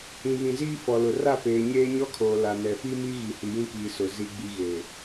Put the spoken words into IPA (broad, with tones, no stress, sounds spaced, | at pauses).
ĩ˨ ɣ ĩ˨ z iː˦ f ɔ˨ l ʊ˨ r a˦˨ p eː˨ ɲ eː˦ ɲ ɔ˦ kʰ oː˨ l a˨ n ɛ˨ f i˦ m i˦ ɣ i˨ h i˨ j ĩ˦ k iː˨ s ʊ˨ z i˨ ɡ͡b i˨ ɣ eː˨